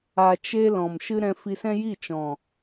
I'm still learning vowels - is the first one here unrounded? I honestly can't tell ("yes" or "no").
yes